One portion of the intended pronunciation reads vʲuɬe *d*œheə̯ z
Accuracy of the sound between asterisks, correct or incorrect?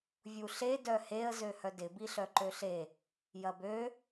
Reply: correct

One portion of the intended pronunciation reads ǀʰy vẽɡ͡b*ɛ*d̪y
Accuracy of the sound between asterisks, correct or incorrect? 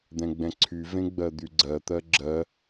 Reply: incorrect: ɜ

